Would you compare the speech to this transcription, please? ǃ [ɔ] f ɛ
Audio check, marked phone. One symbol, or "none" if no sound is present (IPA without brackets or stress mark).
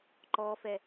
ɔ